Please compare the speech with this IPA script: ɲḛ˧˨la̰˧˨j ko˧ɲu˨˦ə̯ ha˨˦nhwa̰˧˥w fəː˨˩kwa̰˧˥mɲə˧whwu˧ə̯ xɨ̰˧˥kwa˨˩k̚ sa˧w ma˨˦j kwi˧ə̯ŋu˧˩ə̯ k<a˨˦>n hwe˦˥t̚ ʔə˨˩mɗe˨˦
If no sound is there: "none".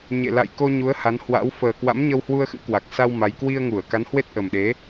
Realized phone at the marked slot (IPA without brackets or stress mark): a˨˦